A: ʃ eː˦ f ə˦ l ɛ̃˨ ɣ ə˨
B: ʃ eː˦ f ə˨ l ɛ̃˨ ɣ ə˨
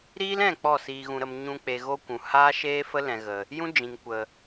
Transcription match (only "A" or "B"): A